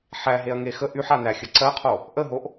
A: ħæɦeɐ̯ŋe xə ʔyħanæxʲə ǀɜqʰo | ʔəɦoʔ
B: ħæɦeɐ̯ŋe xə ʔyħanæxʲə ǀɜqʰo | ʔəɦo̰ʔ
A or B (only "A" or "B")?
A